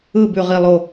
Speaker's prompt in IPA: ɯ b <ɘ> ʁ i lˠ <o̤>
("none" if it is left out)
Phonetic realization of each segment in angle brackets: ʉ, o

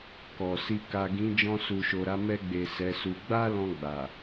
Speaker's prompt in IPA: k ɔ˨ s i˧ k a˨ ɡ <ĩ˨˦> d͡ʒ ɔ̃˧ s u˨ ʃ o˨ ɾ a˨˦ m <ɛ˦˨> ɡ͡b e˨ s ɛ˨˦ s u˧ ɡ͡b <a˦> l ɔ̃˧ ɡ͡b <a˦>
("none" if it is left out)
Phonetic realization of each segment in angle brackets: ĩ˨˦, ɛ˧, a˦, a˨

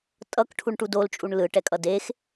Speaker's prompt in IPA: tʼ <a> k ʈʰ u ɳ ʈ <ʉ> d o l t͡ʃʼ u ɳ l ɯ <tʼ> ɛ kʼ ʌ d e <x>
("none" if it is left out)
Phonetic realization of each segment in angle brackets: ʌ, u, ʈ, x

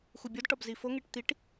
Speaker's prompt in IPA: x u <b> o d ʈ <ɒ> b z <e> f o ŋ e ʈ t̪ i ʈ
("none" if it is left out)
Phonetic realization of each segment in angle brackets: bʲ, ɒ, i

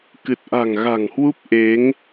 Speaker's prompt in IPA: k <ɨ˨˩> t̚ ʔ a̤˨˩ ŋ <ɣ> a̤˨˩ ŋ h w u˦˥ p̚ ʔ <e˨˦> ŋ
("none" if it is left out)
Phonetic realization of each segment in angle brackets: ɨ˨˩, ɣ, e˨˦

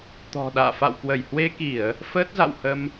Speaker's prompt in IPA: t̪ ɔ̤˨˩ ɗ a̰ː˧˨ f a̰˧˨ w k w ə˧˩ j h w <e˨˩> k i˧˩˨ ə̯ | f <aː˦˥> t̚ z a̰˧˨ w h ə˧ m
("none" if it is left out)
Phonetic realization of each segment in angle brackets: e˧, əː˦˥

